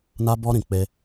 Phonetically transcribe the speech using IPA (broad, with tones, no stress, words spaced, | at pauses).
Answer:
na˦bɔ˦ɾĩ˦˨ k͡pe˧